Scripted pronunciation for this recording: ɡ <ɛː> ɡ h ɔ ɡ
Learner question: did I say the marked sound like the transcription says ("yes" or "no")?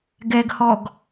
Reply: no